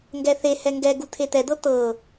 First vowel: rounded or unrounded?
unrounded